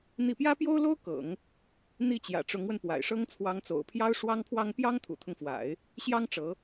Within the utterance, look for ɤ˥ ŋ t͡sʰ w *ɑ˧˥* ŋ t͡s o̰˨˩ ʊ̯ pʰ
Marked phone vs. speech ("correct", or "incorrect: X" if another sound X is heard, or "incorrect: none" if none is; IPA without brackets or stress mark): correct